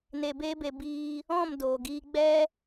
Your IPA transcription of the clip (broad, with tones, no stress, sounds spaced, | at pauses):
n e˧ b eː˦ b e˧ b iː˧ | ɔ̃˦˨ m d oː˨ ɡ iː˧ ɡ͡b ɛ˦